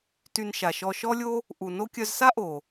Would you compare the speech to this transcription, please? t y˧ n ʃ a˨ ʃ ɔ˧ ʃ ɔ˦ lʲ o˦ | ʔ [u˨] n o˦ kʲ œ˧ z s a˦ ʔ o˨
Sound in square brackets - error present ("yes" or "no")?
no